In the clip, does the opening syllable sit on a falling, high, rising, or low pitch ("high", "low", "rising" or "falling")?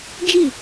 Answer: falling